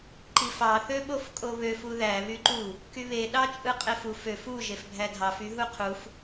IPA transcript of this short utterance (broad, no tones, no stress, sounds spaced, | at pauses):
ǃ i f ɑ θ ø ɓ o f kʼ o β ø f u ð æ β y ǃ u | k y β e ɗ ɑ t͡ʃʼ ɯ qʼ e f u f ø f u ʒ e f bʱ æ dʱ ɑ f y ɦ u qʰ u f